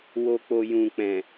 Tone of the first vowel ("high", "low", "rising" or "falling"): low